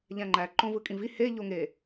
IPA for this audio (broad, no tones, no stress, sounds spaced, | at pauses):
ʎ æ̃ ŋ͡ǃ æ ǃ õ v ɯ kʼ ĩ v i h e ʎ o ŋ e